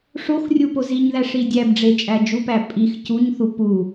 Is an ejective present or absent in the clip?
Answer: present